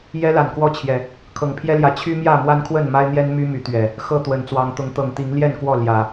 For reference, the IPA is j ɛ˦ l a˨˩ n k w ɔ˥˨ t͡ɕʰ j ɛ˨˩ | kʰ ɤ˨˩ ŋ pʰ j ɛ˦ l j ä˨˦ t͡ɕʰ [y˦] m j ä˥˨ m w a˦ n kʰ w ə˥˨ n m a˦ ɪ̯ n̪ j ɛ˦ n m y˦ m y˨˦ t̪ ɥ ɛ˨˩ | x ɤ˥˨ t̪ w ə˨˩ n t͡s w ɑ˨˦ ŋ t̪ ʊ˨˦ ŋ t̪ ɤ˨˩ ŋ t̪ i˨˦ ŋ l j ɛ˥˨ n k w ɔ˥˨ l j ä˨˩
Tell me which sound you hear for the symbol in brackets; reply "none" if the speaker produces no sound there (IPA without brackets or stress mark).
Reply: y˦